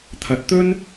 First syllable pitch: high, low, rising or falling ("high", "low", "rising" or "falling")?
rising